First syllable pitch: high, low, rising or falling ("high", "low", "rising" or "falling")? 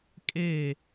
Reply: falling